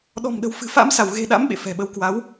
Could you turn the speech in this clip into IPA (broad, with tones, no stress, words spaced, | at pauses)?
ɗɔ̤˨˩mɗə̤˨˩w fɨ̤˨˩fa̰˧˥m sa˧˩wɣe̤˨˩ɗa̰˧˥m ɓḛ˧˨fɛ̤˨˩ɓə˧w kwa˨˦w